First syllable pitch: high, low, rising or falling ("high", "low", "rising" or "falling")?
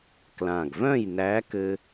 low